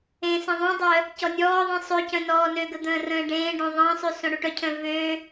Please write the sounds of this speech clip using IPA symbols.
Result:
ẽ s ẽ ðˤ ũ dˤ œ | c ɔ nʲ ɔː ðˤ ĩ sˤ ø c œ̃ n ɔː n ø ɡ ə d̪ ə̃ː r ə̃ː ɖ ẽː ɖ õ ðˤ ə̃ː sˤ y s õ ɽ u ʈ œ cʰ œ̃ v ø

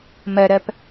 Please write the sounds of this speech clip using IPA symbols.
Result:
m ɜ ɾ ɜ p

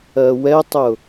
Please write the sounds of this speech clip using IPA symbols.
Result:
ɜ w ɛ tˤ ʊ

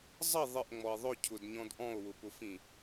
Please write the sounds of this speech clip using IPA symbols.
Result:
zˤ ʌ ðˤ ɪ ʔ ŋ͡m ɔ e̯ ðˤ ʊ cʰ ʊ d ɲ ɔ̃ d ʔ ɔ̃ o̯ w ʊ p ʊ f ĩ

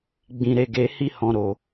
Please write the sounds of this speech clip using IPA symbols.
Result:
ɡ͡b ĩ˨ ɾ e˨ ɡ e˨ h i˧ h ɔ̃˨ ɾ o˨

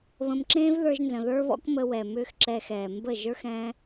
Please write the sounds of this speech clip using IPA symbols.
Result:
β ə̃˧ m ǁ ẽː˦ v ð ə˞˧ ʒ n z ə̃˨ ð ə˞˦ β ɔ̰˦ k m ə˧ w ɛ˨ m ʏː˦ x ǁ ɛː˧ x ɛː˨ m b ə˦˨ ʒ ə˞˦ x ɛ̃˧

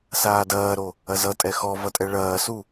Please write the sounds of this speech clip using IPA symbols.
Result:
s aː d ɐː ɾ o | ɐ z ʌ tʼ ɛ x ɔ v ʌ tʼ ɛ ɭ ɐː s u

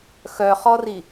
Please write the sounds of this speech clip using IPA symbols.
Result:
x œ χ ɔ r i

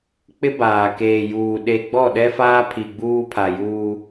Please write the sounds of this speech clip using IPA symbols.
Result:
k͡p ɪ˦ b aː˨ k eː˨ j uː˨ ɗ e˨ ɡ͡b ɔ˦˨ ɗ ɛ˦ f aː˦ pʰ i˨ ɡ͡b uː˦ pʰ a˨ j uː˦

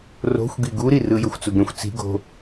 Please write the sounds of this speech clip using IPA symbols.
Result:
r o̤ xʷ ɡ i ɡ u ɾ i r ɯ j ɤ xʷ t͡s u ɡ ɾ ĩ xʷ t͡s i̤ ɡ o̤

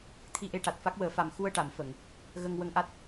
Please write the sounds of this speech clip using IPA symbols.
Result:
t̪ʰ i˧ ʔ e˧ ʈ a˨˩ t̚ f a˦˥ k̚ w əː˨˩˦ f a˨˩ m x u˧ ə̯ ʈ a˨˩˨ m f ə˨˩˨ ŋ | ɣ ə˧ ŋ w ə˧ ŋ ʔ a˦˥ t̚

